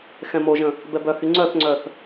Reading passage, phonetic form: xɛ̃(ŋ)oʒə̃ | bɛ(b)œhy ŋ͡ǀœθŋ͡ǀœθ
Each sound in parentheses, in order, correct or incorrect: incorrect: m, correct

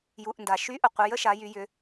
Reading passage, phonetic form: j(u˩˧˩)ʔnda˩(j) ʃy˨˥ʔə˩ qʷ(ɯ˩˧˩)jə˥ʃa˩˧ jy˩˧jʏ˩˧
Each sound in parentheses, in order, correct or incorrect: correct, incorrect: none, incorrect: ə˩˧˩

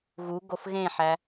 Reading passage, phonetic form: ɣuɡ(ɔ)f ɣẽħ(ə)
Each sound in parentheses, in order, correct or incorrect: incorrect: o, incorrect: æ

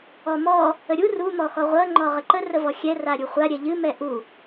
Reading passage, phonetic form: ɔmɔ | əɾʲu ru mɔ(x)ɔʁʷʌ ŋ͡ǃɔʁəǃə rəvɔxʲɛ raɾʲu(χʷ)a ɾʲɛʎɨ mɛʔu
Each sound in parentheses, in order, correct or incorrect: correct, correct

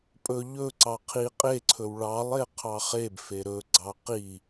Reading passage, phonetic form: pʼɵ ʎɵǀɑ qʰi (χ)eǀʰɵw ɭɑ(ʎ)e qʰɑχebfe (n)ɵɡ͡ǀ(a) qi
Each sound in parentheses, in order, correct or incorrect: incorrect: qʼ, incorrect: lˠ, incorrect: ɾ, incorrect: ɑ

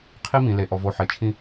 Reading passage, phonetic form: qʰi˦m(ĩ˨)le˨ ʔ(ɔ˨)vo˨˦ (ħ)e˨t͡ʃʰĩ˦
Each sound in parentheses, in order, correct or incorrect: correct, correct, correct

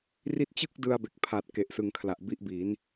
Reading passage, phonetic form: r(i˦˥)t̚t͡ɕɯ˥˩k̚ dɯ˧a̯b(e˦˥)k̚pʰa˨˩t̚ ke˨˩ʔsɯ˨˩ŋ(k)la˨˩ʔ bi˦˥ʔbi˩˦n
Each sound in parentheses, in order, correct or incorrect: correct, incorrect: e˨˩, incorrect: kʰ

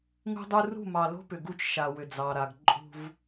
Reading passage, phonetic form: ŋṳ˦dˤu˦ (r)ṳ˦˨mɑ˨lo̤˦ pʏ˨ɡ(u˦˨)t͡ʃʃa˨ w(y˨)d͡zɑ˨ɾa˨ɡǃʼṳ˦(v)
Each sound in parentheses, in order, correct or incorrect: correct, incorrect: u˦, incorrect: ʏ˨, correct

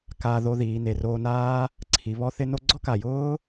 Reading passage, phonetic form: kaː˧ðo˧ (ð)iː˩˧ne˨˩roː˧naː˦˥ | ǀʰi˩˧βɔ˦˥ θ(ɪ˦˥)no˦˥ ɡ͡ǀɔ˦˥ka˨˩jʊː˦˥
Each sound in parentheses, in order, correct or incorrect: correct, correct

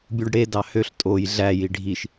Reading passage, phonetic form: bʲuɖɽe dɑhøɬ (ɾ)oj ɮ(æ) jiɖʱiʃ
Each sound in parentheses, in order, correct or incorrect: incorrect: tʼ, correct

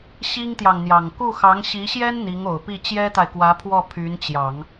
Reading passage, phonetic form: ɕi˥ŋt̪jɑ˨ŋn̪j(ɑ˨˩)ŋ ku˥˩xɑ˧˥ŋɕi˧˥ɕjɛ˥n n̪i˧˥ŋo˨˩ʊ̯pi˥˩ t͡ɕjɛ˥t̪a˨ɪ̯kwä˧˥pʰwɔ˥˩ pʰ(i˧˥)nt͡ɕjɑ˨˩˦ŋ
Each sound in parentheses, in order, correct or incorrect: correct, incorrect: y˧˥

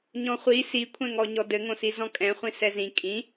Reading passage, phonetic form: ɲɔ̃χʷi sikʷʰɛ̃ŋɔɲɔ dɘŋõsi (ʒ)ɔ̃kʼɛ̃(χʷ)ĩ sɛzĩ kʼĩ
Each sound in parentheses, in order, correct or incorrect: incorrect: z, correct

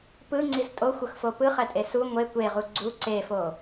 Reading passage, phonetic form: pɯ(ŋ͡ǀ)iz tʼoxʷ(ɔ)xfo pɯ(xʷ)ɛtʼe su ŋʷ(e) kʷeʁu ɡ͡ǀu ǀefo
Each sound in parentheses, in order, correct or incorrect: correct, incorrect: ɤ, incorrect: χ, correct

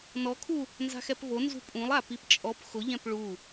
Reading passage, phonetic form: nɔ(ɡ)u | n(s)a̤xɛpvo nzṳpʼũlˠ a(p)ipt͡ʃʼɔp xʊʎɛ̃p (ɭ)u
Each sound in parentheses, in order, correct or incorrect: incorrect: kʰ, incorrect: z, correct, correct

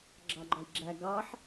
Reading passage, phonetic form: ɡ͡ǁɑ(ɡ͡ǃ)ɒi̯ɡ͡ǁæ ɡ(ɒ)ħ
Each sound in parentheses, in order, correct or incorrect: correct, incorrect: ɑ

